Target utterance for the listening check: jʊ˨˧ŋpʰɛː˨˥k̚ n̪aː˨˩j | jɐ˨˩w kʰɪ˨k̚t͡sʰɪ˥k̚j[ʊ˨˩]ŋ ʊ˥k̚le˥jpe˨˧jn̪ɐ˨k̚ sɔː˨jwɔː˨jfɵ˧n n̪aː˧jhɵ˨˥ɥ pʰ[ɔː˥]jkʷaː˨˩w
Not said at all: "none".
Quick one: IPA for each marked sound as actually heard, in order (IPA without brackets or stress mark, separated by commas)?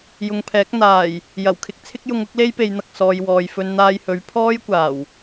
ʊ˧, ɔː˥